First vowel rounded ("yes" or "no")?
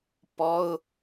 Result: yes